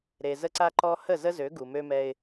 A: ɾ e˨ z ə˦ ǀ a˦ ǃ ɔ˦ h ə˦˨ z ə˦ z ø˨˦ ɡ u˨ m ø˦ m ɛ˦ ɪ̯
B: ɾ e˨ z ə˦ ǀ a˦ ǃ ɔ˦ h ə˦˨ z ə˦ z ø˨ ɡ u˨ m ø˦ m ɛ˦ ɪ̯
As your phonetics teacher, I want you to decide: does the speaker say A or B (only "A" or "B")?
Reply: A